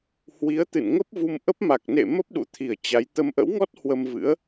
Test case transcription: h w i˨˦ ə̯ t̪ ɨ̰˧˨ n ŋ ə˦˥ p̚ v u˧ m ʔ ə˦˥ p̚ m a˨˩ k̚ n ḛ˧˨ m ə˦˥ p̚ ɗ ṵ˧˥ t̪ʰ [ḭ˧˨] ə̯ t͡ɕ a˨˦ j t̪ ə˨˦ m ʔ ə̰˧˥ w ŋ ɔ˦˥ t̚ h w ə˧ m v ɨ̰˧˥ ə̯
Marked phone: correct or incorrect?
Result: incorrect